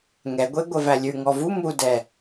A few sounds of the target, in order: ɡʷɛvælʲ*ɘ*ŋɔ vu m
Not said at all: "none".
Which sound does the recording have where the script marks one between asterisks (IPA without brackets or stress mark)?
ʉ